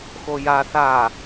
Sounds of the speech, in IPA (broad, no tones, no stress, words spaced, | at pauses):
xoja θa